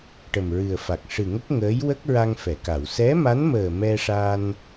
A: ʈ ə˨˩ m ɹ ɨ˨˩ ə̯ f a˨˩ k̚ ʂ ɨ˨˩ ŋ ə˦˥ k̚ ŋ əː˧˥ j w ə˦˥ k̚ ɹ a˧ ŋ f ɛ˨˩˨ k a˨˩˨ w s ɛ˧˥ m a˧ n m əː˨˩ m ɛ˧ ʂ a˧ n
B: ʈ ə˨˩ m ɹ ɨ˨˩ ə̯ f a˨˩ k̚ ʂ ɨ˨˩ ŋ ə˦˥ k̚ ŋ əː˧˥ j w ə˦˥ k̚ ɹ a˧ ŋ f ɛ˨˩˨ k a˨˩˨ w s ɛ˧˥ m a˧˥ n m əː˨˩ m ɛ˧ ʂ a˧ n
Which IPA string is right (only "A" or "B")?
B